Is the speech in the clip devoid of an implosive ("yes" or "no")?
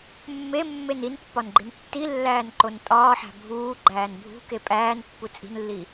yes